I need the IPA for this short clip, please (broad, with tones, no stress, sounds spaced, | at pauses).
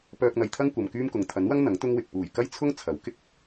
p œː˧ k̚ n̪ ɐ˨ j t̪ʰ ɐ˥ ŋ kʷ ɐ˨ m k yː˥ m k ʊ˨ ŋ t̪ʰ ɐ˨˥ n w ɐ˥ ŋ n̪ ɐ˨˥ ŋ t̪ ʊ˥ ŋ w ɪ˨ k̚ p uː˨˩ j k ɐ˥ j t͡sʰ ʊ˥ ŋ t͡sʰ ɐ˨˥ w k ɪ˥ k̚